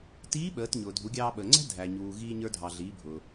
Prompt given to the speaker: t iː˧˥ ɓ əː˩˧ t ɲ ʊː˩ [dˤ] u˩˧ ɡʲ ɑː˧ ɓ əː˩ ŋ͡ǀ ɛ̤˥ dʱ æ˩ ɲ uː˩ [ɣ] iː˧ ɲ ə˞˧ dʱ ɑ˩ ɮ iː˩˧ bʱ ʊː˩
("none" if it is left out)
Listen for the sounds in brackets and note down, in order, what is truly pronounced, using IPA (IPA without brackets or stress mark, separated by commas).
dʱ, ɣ